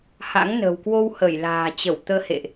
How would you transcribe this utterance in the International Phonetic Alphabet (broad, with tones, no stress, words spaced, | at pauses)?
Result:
ha̰˧˥ŋnə̤˨˩w kwo˧whə˧˩j la̤ː˨˩t͡ɕə˧˩wt̪əː˧hḛ˧˨ʔ